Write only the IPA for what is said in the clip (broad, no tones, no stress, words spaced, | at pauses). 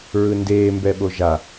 ɹɯndeː mbɛɓoʒa